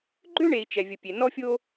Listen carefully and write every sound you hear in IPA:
ɡ͡ǃ ø˥ ɳ e˩ i̯ t͡ʃ ɛ˩ vʲ ə˩ pʲ e˩ n ɔ˥ fʲ o˥

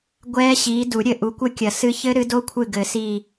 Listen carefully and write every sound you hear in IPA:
ɡʷ ɛː˦˥ ɕ iː˨˦ d u˨˩˦ ɾʲ ɘ˧˩ ʔ u˨˦ kʷ ɘ˦˥ kʲ ɐ˨˩˦ s ɨ˦˥ ç ɘ˦˥ ɾ ɨ˨˦ d o˦˥ kʷʰ ɨ˧˩ ɡ ɘ˨˩˦ s iː˧˩

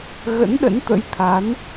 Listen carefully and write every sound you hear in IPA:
ɣ ə̰˧˥ n ɗ ə̰˧˥ n t̪ ə̰˧˥ j t̪ʰ a˨˦ n

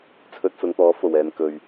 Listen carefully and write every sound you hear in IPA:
t͡sʰ ɵ˧ t̚ s ʊ˨˧ ŋ t̪ ɔː˨˥ f o˨˩ w ɛː˨ n k ɵ˨ ɥ

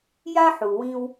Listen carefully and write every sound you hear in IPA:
j a˥ ħ u˩ w ĩ˧ w

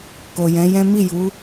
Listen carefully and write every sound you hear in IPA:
k o˨ j ɛ̃˨˦ j ɛ̃˦ m i˦˨ j u˨˦

